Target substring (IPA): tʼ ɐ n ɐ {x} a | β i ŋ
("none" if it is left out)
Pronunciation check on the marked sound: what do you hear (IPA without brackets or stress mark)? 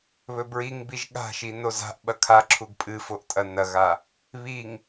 ɣ